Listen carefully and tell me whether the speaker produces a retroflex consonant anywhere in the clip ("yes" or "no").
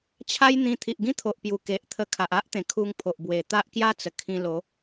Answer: no